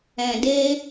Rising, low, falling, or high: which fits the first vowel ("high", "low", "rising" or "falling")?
low